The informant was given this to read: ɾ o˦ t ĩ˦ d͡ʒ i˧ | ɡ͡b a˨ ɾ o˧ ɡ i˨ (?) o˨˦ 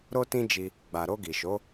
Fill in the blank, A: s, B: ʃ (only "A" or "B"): B